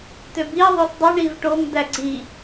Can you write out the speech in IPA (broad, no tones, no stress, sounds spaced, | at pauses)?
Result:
t ø b i ðˤ o s dˤ u ɳ i v ʈ o ŋ d æ ɡ͡ǀ i